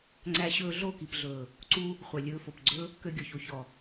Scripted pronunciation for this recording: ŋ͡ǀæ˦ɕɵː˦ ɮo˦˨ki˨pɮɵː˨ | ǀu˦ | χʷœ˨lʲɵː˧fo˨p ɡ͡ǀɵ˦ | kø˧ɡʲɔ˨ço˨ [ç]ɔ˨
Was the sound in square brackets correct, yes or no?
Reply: yes